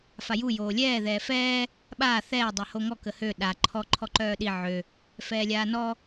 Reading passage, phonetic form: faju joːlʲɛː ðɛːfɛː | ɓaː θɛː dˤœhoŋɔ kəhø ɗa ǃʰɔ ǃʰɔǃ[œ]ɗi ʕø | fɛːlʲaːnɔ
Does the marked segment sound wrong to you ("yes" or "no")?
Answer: yes